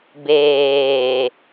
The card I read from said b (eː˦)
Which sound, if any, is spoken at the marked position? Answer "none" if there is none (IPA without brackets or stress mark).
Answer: eː˨